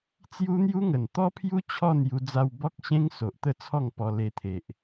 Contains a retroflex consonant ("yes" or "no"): no